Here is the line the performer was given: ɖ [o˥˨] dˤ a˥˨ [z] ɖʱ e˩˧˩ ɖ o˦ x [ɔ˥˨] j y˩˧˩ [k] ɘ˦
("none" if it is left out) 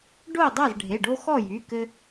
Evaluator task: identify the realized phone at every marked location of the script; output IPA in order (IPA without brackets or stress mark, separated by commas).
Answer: o˥˨, z, ɔ˥˨, k